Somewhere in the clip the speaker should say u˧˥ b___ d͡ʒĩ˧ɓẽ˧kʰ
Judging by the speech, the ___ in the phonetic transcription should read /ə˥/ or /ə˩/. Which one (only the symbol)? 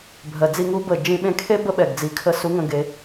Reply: ə˩